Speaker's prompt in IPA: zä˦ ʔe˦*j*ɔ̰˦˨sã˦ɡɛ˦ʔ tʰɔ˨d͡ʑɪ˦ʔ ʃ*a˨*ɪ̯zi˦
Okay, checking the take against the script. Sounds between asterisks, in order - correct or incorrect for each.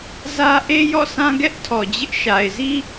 correct, correct

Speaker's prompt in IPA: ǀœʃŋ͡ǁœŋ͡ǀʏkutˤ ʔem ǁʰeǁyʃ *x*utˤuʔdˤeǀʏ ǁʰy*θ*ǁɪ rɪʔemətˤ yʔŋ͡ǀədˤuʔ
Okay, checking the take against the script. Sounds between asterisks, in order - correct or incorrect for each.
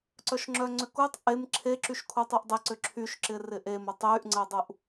incorrect, incorrect

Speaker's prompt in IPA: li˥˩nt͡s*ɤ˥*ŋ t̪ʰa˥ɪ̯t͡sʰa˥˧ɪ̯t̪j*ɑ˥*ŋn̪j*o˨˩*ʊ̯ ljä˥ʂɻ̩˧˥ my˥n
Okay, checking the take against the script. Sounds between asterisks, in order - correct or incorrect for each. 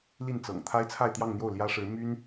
incorrect, incorrect, incorrect

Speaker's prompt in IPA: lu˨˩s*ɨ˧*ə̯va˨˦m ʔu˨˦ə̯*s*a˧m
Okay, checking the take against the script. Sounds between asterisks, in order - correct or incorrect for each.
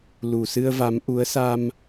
correct, correct

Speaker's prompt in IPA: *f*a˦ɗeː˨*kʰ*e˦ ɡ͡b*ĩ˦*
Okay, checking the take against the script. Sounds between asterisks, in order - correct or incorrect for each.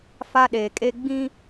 correct, incorrect, correct

